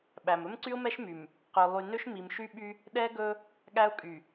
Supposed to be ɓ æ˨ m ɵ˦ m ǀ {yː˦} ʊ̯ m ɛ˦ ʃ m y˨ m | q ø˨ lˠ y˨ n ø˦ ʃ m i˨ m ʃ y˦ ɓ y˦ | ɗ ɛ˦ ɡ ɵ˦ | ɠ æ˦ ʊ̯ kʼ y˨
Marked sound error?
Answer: yes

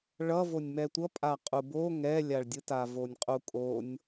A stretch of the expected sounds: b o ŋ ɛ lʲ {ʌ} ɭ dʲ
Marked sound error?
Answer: yes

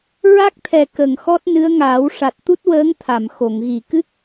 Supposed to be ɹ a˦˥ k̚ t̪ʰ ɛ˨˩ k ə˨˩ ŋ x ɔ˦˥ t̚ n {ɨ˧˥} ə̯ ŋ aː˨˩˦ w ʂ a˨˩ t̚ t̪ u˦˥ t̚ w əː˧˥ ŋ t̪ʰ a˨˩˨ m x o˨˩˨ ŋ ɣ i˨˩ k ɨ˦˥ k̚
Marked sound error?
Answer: no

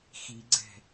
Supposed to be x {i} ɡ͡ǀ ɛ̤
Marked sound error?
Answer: no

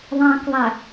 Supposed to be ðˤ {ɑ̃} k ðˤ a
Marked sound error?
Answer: no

